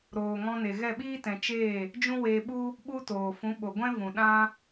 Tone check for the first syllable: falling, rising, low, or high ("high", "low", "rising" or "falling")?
low